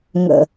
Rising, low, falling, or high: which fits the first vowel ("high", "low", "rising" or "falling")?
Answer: low